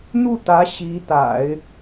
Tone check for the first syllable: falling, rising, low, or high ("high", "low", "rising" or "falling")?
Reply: falling